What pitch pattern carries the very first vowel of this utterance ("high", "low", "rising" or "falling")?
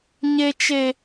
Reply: high